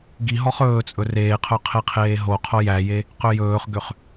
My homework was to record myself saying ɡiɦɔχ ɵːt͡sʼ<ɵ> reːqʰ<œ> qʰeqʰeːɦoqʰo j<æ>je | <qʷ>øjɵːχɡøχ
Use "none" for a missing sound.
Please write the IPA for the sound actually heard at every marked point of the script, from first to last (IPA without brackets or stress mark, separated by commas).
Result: ɵ, œ, æ, q